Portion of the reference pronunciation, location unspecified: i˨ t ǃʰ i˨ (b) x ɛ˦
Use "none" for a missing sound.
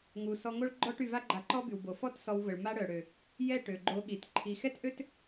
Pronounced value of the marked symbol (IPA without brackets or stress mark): none